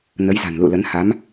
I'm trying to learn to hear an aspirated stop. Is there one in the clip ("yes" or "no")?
no